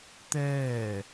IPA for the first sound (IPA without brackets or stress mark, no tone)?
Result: t̪